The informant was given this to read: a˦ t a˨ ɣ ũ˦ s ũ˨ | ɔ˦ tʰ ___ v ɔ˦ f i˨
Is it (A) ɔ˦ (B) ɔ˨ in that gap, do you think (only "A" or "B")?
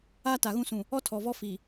B